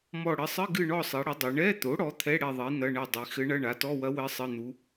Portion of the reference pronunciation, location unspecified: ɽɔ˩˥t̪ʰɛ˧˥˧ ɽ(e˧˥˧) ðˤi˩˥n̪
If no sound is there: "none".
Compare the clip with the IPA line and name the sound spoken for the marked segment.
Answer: e˦˨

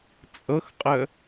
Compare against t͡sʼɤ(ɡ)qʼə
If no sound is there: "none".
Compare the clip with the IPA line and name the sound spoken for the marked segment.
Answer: x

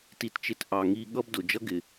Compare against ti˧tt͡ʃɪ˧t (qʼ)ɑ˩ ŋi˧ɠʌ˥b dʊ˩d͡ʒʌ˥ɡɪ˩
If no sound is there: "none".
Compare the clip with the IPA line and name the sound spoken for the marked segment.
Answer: ʔ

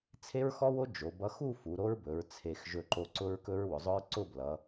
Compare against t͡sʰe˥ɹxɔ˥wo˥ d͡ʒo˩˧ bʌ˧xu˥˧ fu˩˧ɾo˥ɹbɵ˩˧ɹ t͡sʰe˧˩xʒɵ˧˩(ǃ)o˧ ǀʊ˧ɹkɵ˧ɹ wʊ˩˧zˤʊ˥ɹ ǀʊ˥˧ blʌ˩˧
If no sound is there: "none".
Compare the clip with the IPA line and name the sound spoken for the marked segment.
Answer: ǃ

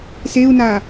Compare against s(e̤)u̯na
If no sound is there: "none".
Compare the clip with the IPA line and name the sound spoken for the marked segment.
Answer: e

